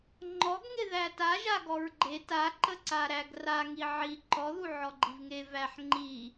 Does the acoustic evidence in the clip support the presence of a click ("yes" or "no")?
yes